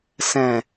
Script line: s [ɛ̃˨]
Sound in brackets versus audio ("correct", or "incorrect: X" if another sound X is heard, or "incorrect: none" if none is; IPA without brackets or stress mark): correct